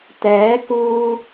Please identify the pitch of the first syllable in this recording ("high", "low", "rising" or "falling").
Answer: rising